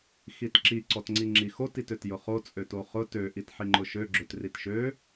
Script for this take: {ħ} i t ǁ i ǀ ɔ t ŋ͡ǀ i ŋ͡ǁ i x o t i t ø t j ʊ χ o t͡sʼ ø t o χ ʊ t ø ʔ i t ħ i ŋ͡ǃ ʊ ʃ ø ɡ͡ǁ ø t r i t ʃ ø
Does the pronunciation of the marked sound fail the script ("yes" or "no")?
yes